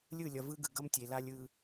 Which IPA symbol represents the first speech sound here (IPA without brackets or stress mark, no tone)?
lʲ